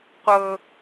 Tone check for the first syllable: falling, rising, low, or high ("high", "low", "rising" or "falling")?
low